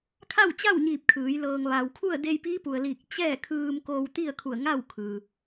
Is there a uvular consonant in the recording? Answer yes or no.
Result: no